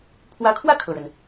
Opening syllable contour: rising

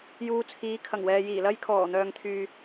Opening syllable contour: low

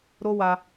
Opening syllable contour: high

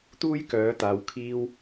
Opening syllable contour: high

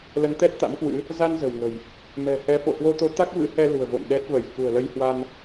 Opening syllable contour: rising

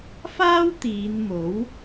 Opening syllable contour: high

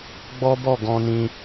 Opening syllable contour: high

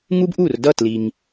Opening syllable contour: high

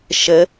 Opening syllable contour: rising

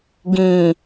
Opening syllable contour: low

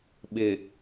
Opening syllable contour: low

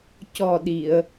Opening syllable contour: low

